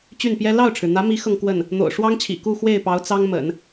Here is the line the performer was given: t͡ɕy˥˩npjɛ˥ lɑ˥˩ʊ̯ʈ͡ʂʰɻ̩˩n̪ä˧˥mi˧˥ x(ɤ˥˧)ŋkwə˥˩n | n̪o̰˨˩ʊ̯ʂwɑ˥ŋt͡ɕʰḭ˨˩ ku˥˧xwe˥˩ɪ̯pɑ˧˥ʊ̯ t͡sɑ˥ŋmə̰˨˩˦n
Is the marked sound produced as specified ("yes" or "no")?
yes